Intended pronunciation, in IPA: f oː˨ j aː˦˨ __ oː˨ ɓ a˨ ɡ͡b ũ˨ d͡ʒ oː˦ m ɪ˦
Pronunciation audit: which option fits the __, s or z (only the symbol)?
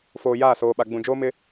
s